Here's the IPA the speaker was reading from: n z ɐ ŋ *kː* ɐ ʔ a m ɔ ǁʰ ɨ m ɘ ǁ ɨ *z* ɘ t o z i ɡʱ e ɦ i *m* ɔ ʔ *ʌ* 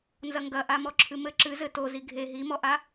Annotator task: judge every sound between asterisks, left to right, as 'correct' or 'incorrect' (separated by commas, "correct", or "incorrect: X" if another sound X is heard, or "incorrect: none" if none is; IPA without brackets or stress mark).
incorrect: ɡ, correct, correct, incorrect: a